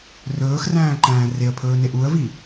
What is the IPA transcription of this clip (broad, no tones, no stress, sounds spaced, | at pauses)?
r ɵː x r æ̃ː ǃ æ̃ː r e ə̯ pʰ ɵː n e ʔ u ə̯ v i